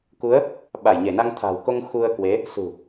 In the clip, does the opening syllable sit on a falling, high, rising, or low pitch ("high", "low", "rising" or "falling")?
rising